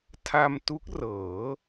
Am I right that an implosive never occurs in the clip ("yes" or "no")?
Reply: yes